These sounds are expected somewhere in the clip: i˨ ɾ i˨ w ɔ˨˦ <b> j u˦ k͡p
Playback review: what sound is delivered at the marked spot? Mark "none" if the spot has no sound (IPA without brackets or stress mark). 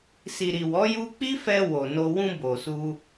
none